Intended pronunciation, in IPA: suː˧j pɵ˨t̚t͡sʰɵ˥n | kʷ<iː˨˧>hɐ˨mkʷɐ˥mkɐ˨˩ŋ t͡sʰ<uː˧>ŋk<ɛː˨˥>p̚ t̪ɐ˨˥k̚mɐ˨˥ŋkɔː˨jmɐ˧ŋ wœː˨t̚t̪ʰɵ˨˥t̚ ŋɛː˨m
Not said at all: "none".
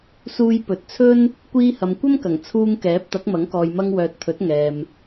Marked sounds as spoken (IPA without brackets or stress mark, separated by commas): iː˧, uː˧, ɛː˨˥